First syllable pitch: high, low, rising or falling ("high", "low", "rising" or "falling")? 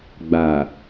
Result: low